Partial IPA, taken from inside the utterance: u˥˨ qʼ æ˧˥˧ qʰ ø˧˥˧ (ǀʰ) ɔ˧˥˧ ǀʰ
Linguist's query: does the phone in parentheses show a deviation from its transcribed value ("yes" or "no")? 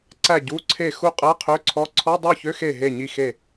no